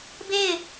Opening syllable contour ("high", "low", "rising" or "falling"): falling